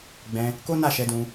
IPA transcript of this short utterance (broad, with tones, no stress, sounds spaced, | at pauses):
ɡ͡b ɛ̃˧ | k o˦ n a˦˨ ʃ ɛ˧ d ũ˧